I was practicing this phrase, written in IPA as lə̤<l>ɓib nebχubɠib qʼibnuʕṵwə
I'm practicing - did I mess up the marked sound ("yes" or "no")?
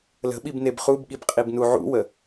yes